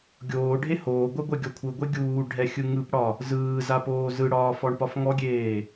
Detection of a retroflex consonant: present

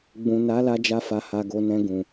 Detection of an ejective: absent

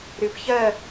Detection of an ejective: absent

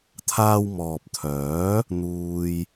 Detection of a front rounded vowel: present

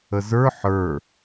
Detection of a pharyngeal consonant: present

